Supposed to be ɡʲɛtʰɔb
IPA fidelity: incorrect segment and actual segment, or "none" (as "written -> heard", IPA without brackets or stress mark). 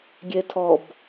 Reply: none